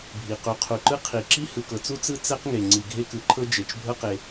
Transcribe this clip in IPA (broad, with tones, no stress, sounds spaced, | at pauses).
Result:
bʱ i˩ q u˩ qʰ u˩ ǃ ɯ˥ qʰ i˩ ǁ i˥ h ɯ˩ k ɤ˩ t͡s u˥ t͡s ɯ˥ t͡s ɛ˥ q ŋ e˩ ŋ͡ǀ i˩ ɡʱ e˥ k ɯ˩ ǃʰ ɤ˥ d͡ʒ e˩ t͡ʃ bʱ ɤ˥ q e˩